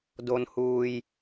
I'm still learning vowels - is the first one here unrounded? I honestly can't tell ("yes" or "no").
no